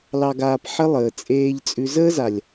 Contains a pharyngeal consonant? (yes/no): yes